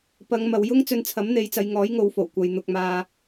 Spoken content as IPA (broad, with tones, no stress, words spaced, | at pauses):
pɐ˨˧ŋmɐ˨wjʊ˥ŋ t͡sɵ˧nt͡sʰɐ˨˥mn̪e˨˧jt͡sɐ˨˧j ŋɔː˨˥jŋo˨˧wfo˨˩w kʷɐ˨j n̪ʊ˨k̚maː˨